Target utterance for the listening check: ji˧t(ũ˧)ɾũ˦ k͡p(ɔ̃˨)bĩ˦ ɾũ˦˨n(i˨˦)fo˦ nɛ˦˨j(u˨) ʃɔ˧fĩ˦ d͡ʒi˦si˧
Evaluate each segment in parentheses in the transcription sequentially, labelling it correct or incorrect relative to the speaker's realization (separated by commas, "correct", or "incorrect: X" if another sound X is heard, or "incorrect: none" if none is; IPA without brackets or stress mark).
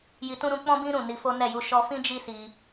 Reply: incorrect: ũ˦, incorrect: ɔ̃˦, incorrect: i˧, incorrect: u˧